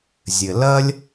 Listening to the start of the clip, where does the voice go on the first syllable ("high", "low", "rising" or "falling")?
low